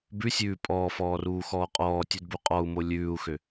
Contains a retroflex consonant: no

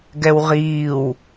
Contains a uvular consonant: yes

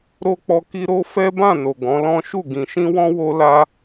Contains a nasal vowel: yes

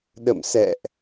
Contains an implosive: yes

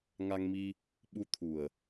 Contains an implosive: yes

